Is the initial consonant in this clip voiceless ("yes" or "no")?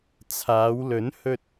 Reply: yes